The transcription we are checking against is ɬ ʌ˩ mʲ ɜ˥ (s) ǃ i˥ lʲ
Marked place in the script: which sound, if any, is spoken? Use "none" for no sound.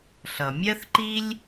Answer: θ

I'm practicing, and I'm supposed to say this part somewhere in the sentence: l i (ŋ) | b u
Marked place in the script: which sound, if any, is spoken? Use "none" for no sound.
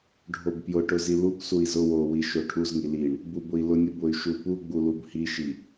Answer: ɳ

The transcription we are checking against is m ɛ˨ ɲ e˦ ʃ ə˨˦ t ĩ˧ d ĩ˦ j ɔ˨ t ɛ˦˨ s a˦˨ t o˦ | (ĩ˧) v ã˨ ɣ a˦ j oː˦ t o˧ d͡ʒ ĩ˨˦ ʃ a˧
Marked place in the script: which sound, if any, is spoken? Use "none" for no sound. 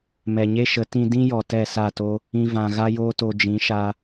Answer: ĩ˧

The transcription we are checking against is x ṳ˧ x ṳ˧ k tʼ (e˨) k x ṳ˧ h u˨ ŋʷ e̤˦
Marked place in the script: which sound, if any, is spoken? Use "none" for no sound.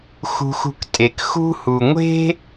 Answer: e˨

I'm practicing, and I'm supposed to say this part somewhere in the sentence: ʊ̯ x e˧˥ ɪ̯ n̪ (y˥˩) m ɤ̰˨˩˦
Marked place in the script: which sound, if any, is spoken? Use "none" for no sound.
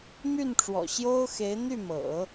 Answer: y˥˩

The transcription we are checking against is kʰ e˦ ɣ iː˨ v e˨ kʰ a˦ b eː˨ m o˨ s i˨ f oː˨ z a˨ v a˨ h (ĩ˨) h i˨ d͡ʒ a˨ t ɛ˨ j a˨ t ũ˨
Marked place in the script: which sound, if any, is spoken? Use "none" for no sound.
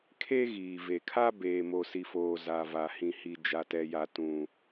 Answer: ĩ˨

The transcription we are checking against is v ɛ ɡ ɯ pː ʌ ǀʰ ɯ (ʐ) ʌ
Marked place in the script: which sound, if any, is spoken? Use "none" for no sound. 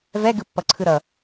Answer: ɾ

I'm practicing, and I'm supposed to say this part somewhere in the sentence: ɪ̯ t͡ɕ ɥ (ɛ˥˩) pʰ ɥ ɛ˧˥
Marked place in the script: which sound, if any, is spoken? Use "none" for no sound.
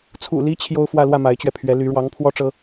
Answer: ɛ˧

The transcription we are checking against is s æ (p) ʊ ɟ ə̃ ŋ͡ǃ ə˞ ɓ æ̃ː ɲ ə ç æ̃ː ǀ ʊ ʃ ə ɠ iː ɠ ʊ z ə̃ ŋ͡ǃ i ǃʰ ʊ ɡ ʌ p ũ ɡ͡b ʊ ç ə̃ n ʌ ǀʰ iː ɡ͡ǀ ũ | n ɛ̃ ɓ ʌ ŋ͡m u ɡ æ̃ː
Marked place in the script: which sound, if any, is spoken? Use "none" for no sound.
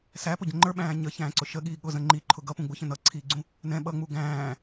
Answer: p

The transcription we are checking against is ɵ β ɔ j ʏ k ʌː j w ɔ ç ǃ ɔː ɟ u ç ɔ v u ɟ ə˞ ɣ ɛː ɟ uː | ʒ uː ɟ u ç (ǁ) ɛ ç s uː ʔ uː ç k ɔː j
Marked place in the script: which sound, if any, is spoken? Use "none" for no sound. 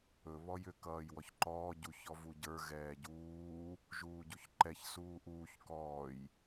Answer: ǃ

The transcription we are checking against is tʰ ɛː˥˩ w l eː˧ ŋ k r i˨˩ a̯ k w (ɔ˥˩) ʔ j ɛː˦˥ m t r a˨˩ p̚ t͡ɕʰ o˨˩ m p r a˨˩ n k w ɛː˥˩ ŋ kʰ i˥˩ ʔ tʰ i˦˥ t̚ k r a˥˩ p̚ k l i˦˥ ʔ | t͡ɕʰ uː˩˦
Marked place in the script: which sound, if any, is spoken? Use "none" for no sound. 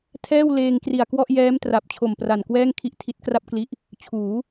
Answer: ɔ˥˩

